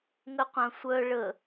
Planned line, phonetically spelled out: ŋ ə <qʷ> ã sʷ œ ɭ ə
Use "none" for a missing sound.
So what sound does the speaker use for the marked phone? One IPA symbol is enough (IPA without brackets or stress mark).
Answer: qʷ